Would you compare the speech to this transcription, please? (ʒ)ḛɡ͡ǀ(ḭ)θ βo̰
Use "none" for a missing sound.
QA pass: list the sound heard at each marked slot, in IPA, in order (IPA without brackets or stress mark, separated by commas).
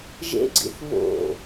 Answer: ʒ, ḭ